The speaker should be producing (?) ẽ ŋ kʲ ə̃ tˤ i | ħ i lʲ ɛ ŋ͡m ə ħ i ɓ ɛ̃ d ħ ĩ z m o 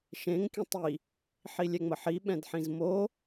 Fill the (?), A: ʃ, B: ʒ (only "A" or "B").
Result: A